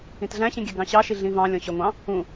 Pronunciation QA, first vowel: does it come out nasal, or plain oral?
nasal